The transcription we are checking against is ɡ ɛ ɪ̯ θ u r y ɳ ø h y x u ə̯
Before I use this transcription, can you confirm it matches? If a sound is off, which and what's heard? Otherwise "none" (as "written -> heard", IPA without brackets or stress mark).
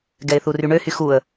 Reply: none